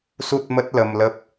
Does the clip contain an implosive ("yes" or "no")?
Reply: no